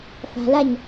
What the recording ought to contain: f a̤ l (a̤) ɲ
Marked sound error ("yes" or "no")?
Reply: yes